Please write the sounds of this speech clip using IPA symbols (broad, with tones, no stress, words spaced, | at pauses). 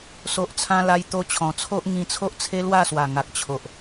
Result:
so˨ʔt͡sʰã˧ la˧jt̪o˧t͡ɕʰɔ̃˨˩t͡sʰo˦ʔ ŋĩ˧t͡sʰo˦ʔt͡sʰe˦ lwa˥˧swa˨˩ ŋa˨k̚t͡ɕʰo˨ʔ